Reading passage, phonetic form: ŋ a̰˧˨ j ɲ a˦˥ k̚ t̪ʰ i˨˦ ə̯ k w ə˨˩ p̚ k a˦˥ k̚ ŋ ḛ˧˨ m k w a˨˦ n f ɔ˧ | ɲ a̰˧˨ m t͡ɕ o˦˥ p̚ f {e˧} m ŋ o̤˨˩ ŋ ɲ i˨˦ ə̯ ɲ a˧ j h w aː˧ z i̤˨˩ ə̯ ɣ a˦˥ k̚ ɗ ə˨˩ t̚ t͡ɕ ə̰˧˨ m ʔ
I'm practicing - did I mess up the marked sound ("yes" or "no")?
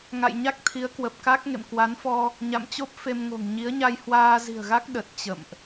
no